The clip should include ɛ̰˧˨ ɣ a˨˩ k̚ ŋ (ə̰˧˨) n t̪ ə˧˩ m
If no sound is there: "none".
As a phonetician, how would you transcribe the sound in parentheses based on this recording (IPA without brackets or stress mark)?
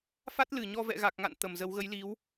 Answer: a̰˧˨